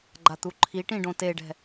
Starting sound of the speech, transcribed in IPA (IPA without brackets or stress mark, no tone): ɡ͡ǃ